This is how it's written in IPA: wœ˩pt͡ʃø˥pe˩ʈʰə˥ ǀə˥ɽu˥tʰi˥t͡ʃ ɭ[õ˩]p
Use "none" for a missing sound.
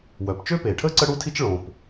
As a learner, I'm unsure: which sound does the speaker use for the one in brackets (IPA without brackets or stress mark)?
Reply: õ˩